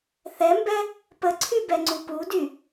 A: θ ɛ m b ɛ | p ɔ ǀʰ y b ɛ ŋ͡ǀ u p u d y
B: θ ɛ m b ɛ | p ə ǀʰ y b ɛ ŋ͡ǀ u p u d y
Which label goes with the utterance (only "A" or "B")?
B